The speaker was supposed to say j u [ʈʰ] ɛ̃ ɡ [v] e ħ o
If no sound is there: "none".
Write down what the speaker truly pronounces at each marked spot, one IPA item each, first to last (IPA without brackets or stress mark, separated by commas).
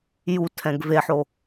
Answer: tʰ, v